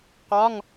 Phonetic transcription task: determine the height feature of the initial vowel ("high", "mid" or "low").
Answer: low